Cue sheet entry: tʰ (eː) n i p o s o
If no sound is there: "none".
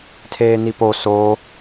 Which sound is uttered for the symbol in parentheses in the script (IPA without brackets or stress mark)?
eː